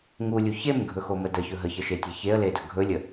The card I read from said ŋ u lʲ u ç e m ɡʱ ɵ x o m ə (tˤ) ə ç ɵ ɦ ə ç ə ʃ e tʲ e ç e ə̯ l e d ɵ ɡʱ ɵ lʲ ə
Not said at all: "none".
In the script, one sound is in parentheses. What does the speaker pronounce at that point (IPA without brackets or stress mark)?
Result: d